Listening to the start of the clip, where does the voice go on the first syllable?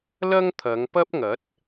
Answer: high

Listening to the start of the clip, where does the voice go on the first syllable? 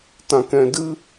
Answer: low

